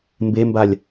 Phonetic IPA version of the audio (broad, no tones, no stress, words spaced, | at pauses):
mbembalʲ